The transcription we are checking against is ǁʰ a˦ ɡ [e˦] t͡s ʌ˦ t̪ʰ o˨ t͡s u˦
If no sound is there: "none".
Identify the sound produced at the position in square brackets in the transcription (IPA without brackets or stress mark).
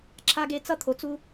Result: e˦